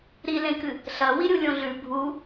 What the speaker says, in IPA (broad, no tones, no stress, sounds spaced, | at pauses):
ɾ i l ẽ k ɨ | ɬ ɐ w i ɾʲ u lʲ õ ɮ ʉ bʱ u